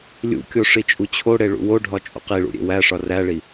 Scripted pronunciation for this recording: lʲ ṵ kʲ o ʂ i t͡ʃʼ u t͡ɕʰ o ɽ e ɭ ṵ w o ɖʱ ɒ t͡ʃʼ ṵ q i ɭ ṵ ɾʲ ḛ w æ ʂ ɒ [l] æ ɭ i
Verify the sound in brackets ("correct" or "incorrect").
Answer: incorrect